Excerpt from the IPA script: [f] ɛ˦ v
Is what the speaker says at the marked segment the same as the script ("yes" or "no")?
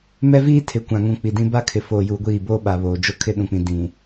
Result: no